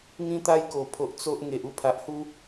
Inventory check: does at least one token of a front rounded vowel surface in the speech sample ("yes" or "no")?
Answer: no